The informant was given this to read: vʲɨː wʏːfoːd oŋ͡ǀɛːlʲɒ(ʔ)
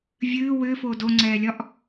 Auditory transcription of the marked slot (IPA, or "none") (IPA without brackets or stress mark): ʔ